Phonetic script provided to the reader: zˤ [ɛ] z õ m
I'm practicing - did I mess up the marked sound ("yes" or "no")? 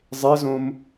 yes